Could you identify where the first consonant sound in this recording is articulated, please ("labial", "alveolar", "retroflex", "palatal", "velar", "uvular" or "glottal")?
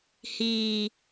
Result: glottal